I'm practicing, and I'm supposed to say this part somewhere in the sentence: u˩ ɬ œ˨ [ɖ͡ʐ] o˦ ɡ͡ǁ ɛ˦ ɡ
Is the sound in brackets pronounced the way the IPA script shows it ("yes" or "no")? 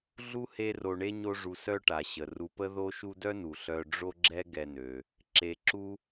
yes